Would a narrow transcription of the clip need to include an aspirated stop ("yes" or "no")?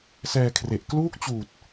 yes